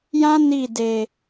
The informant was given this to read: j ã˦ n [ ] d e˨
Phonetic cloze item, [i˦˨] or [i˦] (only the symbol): i˦˨